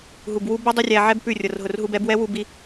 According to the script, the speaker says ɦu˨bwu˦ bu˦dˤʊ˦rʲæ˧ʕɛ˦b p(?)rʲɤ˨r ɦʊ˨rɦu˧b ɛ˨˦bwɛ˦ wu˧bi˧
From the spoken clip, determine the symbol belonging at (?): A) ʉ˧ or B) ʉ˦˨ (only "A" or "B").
B